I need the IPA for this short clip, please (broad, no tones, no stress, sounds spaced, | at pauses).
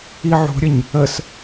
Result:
i ʕ ṳ ɾʲ ə ɲ | ə s